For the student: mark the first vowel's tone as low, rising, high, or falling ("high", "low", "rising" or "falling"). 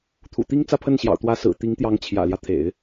low